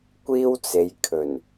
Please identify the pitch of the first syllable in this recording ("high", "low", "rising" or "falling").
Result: high